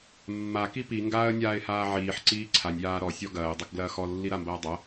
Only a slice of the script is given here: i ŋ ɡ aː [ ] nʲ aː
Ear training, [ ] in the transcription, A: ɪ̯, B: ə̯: B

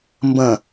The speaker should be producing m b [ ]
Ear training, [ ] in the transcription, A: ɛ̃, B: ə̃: B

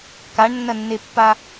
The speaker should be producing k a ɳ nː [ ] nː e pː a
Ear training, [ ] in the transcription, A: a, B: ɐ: B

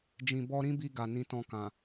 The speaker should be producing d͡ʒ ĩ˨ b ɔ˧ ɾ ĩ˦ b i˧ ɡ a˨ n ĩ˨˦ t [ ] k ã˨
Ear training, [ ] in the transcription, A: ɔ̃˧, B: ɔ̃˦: A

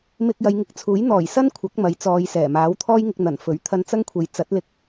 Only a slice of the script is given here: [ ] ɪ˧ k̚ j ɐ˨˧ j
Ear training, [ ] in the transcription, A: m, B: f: A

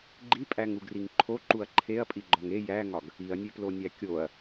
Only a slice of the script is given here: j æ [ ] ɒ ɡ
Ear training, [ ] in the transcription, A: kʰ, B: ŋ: B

